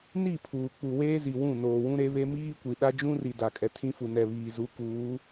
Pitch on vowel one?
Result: falling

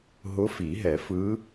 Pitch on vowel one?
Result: rising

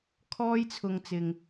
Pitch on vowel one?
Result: high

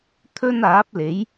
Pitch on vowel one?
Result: high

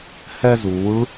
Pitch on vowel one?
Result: high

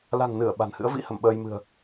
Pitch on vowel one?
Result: low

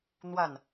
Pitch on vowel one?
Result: falling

